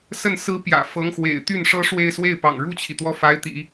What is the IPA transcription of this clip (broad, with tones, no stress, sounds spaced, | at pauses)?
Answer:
s ə˥˩ n s ɹ̩˥ p j ä̰˨˩ f ɤ˧˥ ŋ x w ḛ˨˩ ɪ̯ t̪ y˥˩ n ʂ ɤ˥ ʂ w e˥˧ ɪ̯ s w e˥˩ ɪ̯ p ɑ̰˨˩ ŋ ɻ u˥˩ t͡ɕʰ i˩ t̪ w ɔ˥ f a˧˥ ɪ̯ t̪ ḭ˨˩˦